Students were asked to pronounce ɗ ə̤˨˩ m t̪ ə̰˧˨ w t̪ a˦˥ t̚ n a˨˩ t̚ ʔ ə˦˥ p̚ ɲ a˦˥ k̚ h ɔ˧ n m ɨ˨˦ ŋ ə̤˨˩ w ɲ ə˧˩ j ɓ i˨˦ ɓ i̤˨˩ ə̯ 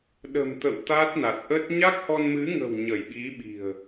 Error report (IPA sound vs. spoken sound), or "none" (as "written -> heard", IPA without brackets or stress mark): p̚ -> t̚